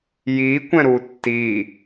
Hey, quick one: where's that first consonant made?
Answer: palate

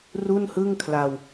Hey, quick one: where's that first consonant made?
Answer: tongue tip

